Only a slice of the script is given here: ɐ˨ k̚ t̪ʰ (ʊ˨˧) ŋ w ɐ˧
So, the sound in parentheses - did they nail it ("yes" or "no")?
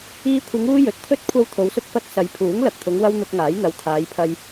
yes